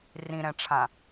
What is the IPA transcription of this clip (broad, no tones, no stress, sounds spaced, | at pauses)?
r ĩ ɾ ɛ̃ ʈ͡ʂʰ ã